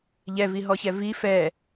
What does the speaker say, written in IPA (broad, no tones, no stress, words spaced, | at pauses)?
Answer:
ʎɛviɦɔçɛ vi fɛ